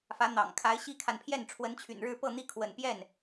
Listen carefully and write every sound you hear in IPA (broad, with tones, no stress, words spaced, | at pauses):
fä˧˥n̪ɑ̰˨˩ŋ kʰa˧˥ɪ̯ɕi˥kʰa˨npʰjɛ˥˩n ʈ͡ʂʰwə˧˥nt͡ɕʰy̰˨˩nɻɻ̩˥˧ pɤ˥˧n̪i˥˩kʰwə̰˨˩n pjɛ˥˩n